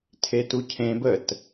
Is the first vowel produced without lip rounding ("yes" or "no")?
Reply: yes